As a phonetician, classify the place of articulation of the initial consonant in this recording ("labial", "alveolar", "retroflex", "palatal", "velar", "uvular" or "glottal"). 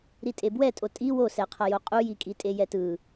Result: alveolar